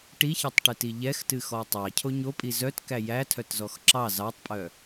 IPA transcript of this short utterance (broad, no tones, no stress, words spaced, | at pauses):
ʈiçetˤʈɨti ʎɛxtɨxɔ tˤɑcʰo ɲopʼi zœtkæ jætʰœtzɔx ǁɑ zɑtˤpʼœ